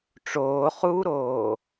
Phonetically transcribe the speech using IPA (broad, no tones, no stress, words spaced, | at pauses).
ʈ͡ʂoːχuːɾoː